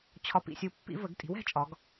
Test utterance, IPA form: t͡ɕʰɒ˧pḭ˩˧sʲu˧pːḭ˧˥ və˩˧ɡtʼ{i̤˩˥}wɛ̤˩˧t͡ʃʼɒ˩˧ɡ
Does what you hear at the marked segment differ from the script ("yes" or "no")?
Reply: no